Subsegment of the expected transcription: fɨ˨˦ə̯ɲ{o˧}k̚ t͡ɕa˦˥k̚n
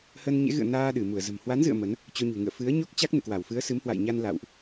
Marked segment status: incorrect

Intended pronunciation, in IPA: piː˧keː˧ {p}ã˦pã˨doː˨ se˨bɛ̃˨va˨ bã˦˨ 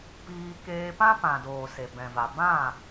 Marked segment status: correct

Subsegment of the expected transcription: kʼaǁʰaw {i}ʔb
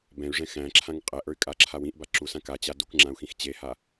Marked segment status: incorrect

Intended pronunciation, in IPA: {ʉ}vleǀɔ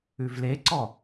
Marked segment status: correct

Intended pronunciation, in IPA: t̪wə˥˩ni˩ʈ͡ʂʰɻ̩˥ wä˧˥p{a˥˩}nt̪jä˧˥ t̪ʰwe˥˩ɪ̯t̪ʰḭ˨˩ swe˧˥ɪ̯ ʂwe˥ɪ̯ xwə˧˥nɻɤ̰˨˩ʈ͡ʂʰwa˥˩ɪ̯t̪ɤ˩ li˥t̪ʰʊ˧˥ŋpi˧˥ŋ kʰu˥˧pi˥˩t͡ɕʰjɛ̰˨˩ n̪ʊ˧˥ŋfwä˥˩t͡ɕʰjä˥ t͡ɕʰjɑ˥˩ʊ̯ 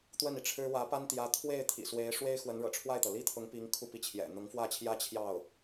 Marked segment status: incorrect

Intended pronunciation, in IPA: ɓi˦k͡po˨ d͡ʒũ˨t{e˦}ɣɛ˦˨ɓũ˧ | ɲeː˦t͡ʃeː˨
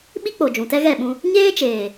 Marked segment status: incorrect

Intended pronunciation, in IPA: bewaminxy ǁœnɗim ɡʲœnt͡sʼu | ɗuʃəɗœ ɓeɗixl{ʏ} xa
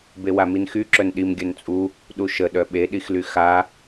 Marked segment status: incorrect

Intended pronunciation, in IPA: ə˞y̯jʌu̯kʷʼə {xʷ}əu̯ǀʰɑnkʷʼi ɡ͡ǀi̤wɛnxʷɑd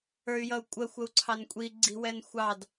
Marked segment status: correct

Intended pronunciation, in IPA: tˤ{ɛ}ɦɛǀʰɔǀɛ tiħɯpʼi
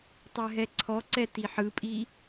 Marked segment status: correct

